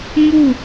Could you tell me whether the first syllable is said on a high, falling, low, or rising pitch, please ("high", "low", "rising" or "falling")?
falling